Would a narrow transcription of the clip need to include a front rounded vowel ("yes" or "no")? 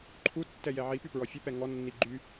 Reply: yes